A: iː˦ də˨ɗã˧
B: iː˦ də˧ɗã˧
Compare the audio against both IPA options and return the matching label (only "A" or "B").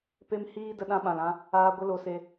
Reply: B